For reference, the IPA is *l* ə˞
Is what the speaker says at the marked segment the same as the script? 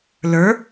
yes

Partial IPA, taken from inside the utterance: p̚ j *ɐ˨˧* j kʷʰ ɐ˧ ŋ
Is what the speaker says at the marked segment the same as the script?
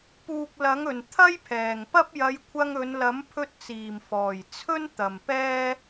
yes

